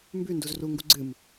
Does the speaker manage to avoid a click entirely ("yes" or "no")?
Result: no